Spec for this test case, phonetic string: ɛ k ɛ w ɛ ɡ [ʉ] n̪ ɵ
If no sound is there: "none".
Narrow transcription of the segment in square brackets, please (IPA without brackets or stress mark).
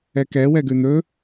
ʉ